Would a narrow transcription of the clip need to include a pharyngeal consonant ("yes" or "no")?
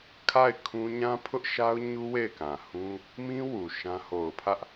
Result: no